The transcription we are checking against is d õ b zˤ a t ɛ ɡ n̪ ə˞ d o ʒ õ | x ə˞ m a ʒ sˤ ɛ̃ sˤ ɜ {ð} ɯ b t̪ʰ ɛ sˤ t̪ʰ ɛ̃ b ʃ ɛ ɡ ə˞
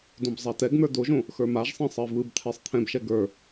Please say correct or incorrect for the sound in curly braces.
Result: incorrect